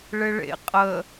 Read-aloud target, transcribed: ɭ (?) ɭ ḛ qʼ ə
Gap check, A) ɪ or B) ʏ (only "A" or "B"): A